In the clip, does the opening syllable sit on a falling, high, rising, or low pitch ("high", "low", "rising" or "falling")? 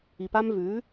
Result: low